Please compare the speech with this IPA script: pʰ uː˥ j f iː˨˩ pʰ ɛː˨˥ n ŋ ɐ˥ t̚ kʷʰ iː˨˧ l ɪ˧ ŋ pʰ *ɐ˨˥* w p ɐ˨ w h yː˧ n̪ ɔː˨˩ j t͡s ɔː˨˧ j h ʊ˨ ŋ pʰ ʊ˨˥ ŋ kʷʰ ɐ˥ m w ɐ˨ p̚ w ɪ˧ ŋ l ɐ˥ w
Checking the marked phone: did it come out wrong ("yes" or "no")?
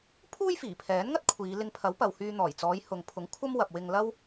no